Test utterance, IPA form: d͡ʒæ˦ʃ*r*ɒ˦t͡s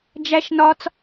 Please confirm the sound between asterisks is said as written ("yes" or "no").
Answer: no